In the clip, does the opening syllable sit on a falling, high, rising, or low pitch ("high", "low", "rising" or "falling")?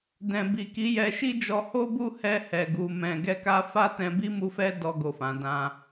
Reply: low